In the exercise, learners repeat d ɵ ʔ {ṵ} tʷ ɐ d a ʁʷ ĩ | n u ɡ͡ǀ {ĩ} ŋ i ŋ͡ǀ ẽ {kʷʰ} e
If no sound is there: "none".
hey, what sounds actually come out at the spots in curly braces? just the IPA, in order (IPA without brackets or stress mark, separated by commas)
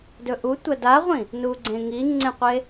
u, ẽ, qʷ